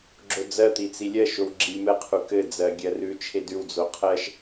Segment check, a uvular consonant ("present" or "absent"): present